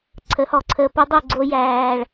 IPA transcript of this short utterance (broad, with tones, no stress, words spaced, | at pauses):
ǀʰə˨˦hɔ˨ǀʰəː˧ pə˦dˤu˦˨ ɡ͡ǀo˦jæː˧ɭ